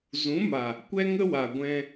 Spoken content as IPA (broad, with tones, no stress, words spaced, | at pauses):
zũ˨˦ma˨ | kʷɛ˦ŋə˦wa˨ɡʷɛ̃˧